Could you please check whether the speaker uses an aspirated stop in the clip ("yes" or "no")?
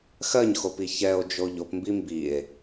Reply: no